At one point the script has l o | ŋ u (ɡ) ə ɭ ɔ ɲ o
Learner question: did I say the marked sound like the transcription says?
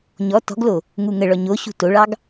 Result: no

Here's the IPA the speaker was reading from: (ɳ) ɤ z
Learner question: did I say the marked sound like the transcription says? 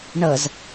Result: yes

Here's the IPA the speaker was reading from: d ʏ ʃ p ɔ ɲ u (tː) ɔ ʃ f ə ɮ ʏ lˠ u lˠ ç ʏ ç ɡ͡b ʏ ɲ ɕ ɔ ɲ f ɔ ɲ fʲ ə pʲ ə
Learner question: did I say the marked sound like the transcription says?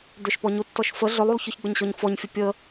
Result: yes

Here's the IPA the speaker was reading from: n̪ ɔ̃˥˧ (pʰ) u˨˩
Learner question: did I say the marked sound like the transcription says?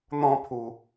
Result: yes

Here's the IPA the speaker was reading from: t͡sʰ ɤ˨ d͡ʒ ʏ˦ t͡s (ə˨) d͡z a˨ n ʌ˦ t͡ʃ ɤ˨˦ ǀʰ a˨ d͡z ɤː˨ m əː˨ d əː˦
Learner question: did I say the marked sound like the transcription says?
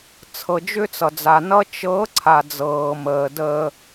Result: no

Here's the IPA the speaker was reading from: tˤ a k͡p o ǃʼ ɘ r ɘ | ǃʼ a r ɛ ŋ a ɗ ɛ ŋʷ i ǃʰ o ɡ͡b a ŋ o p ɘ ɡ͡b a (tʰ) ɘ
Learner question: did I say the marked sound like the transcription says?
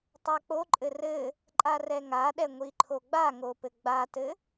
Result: no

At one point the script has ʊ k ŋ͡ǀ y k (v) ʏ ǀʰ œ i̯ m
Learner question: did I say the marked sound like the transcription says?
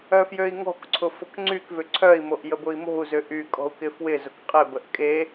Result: yes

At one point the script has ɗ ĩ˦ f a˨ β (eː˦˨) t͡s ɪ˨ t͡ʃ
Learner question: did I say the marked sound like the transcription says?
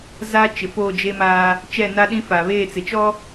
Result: yes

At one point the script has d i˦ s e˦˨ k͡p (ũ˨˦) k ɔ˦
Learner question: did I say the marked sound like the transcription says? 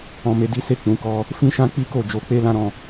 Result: yes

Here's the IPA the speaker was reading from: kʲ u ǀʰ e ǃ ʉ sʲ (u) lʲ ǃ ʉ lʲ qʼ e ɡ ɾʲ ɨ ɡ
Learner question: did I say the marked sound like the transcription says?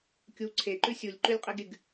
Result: yes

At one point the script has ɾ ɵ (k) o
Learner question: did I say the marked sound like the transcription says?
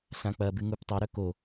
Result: yes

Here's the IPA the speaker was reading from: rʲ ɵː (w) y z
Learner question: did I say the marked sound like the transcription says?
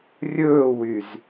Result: yes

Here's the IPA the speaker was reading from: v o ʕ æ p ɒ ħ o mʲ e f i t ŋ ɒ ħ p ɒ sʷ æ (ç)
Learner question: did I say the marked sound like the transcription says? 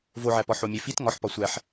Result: no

